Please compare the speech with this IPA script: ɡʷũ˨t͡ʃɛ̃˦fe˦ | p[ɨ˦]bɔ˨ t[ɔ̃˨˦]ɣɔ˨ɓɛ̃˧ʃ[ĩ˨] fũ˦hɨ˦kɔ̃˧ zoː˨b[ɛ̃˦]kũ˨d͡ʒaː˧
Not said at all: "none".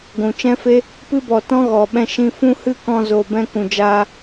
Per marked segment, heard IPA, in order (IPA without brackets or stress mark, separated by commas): ɨ˦, ɔ̃˦, ĩ˧, ɛ̃˧